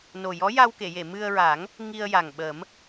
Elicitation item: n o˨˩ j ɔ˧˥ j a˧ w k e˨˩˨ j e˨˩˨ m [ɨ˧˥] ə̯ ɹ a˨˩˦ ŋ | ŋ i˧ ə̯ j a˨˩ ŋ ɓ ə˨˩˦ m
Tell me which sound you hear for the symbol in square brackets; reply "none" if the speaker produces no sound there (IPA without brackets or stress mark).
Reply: ɨ˧